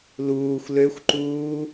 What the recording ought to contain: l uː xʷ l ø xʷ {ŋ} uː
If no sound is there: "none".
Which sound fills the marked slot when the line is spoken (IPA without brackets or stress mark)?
ǃ